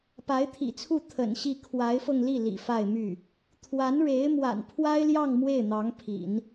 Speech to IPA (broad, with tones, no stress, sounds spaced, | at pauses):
p a˧˥ ɪ̯ t̪ʰ ḭ˨˩ t͡sʰ u˥˩ t̪ʰ ə̰˨˩ n ɕ i˥˩ kʰ w a˧˥ ɪ̯ f ɤ˧ ŋ l i˥˩ l ḭ˨˩ f a˥˧ ɪ̯ m y˥˩ | t̪ʰ w a˧˥ n ɻ e˧˥ ɪ̯ m w a̰˨˩ n pʰ w a˥ ɪ̯ l j ɑ˥˧ ŋ m w e˥˩ ɪ̯ n̪ ɑ˧˥ ŋ pʰ ḭ˨˩˦ n